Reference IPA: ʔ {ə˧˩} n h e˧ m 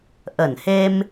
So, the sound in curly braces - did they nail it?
yes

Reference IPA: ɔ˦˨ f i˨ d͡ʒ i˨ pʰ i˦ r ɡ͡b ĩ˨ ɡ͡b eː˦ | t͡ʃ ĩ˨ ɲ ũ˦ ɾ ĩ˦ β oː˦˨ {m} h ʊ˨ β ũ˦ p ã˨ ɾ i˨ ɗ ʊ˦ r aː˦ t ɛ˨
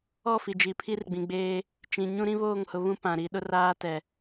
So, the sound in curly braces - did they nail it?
no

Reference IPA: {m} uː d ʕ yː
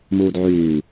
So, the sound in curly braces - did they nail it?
yes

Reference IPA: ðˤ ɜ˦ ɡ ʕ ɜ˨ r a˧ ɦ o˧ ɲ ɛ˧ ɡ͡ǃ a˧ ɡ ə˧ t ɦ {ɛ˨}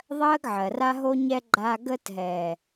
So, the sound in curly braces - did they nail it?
yes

